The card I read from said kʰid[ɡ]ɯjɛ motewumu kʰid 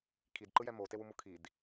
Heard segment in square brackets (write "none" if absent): ǃ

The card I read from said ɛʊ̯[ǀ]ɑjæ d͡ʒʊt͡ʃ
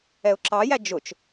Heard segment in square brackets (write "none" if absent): ǁ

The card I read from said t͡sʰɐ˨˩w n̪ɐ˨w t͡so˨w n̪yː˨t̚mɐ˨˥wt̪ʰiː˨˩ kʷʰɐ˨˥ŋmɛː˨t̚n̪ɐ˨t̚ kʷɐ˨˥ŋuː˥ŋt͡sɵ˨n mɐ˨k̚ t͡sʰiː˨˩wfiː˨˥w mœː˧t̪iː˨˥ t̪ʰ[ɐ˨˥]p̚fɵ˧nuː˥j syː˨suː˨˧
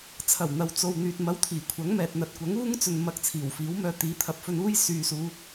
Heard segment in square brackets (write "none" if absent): ɐ˨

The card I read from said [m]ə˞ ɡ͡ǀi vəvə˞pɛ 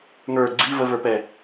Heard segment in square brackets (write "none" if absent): ŋ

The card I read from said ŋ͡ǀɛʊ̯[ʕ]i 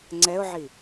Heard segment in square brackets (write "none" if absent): ʕ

